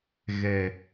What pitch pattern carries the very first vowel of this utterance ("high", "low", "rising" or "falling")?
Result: low